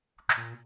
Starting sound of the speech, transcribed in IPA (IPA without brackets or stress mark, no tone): ǁ